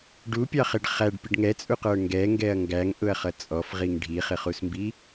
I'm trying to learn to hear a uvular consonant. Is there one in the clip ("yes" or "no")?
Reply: yes